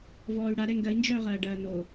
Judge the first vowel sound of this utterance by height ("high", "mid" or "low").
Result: mid